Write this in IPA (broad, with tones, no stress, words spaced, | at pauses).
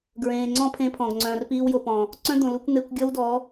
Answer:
ɡɹẽː˨ŋ͡ǀɔ̃˦pʰẽ˧pʰɔ̃˨ɡ ŋ͡ǀœ̃ː˨rpiː˧wjo˨pɔ̃˨ | ǀœ̃˦d̪õ˨ lu˧kʷn̪e˧kʷ ɡʲɔ˦wdɔ˨˦